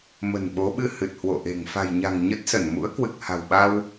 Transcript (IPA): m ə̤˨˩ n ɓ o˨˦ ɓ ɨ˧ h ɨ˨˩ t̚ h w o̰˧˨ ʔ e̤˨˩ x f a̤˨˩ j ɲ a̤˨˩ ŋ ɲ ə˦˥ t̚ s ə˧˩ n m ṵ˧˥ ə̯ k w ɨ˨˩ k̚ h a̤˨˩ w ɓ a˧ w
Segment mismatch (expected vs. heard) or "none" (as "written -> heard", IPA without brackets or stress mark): x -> ŋ